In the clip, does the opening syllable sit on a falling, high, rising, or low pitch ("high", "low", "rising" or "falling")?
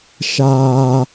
high